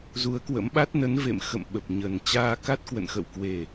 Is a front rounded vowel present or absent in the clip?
absent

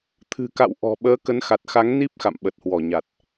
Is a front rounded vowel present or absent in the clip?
absent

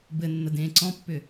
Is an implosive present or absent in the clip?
absent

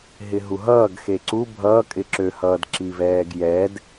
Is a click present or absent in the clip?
present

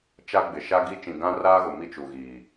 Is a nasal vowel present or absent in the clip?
present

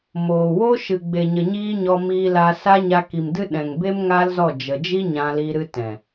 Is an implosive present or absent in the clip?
present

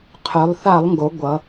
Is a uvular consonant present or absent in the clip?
present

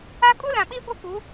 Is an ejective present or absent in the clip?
present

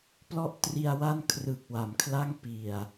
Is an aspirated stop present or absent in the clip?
present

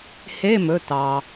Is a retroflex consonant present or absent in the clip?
absent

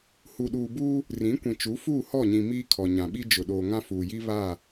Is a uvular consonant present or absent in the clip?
absent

